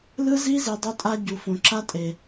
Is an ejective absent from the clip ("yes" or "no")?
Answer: no